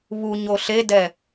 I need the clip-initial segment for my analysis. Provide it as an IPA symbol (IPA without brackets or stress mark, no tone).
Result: β